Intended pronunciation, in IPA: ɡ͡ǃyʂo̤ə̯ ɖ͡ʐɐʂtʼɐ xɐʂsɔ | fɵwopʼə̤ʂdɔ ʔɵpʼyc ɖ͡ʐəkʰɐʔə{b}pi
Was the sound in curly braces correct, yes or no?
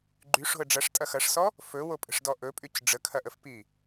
no